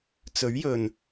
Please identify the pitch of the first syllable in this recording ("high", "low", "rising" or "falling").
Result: rising